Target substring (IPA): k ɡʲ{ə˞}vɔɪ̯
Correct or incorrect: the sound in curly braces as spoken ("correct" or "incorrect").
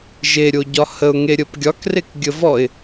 incorrect